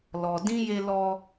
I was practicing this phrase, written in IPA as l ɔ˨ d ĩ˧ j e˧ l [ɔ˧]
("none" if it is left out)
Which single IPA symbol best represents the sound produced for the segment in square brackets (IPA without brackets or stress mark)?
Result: ɔ˧